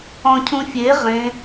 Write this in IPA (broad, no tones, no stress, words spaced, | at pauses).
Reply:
ɔ̃cʰũfʲe ʁẽ